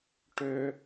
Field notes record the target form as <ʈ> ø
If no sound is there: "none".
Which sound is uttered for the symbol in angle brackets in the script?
ʈ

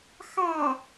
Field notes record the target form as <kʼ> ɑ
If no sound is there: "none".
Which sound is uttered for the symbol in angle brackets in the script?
x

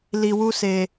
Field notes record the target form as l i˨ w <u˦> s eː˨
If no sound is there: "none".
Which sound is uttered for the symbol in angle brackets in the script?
u˦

